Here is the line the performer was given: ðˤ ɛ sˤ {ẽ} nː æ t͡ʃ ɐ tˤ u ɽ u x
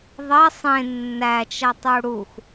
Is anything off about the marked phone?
no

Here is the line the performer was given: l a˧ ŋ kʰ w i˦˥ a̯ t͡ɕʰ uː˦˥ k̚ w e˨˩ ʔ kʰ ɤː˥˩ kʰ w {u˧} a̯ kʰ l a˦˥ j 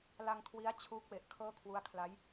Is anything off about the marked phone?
yes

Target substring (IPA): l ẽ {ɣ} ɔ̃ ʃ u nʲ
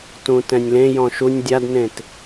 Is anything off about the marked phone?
yes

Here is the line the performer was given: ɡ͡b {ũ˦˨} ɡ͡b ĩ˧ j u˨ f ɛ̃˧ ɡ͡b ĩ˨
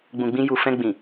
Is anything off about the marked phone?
yes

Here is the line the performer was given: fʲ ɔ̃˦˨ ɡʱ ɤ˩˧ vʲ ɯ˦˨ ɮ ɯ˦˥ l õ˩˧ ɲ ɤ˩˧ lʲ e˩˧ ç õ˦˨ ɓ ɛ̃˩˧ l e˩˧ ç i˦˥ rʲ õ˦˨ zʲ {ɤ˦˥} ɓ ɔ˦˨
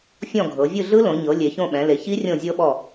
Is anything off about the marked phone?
no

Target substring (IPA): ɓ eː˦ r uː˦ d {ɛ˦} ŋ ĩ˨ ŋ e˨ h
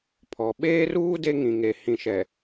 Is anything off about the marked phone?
yes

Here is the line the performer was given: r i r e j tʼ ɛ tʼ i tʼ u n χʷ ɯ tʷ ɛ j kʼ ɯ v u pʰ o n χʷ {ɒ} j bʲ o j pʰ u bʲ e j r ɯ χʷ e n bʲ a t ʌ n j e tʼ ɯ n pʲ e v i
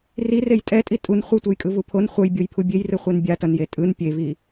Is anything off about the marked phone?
yes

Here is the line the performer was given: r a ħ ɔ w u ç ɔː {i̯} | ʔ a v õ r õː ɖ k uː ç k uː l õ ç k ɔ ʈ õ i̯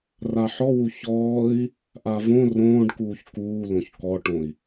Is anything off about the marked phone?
no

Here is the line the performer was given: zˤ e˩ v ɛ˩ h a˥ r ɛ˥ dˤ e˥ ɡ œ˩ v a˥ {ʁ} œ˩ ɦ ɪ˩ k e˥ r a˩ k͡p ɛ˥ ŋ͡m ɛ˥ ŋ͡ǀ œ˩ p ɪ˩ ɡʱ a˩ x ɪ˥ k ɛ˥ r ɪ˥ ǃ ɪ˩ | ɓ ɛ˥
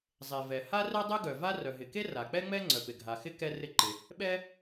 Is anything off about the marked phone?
yes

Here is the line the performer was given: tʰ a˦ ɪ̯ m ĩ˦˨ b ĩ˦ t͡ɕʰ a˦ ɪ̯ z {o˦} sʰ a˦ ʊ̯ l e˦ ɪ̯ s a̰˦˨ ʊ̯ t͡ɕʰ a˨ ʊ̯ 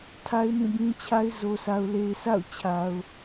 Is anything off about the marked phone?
no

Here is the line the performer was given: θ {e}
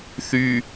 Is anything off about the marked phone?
yes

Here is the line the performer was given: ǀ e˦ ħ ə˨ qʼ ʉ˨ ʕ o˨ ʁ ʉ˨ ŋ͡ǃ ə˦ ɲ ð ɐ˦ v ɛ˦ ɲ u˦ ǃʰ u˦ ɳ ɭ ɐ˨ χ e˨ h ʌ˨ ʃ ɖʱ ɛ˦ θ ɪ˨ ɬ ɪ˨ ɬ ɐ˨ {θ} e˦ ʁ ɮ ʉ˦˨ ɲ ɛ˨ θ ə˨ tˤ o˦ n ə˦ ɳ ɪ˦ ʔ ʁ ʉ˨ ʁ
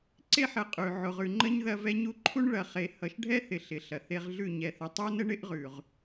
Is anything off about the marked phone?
no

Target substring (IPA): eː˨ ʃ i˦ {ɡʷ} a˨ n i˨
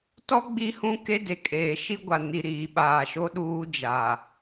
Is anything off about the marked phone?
no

